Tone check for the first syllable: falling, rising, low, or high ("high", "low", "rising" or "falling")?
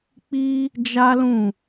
high